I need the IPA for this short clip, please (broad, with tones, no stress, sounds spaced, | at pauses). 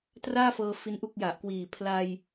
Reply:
t r aː˥˩ f ɤː˧ f i˦˥ n ʔ u˥˩ k̚ j a˨˩ ʔ k w iː˨˩ pʰ l a˧ j